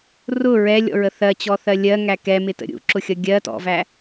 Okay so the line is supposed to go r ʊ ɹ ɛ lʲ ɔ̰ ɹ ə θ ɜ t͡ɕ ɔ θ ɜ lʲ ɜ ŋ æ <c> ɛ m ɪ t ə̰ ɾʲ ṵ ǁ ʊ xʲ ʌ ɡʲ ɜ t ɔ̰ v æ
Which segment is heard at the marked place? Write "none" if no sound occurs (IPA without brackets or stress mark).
k